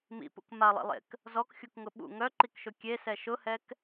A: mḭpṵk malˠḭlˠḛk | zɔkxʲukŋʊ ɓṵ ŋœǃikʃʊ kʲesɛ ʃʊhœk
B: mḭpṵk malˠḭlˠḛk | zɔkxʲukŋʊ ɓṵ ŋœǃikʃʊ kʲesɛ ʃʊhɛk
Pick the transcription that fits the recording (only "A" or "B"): B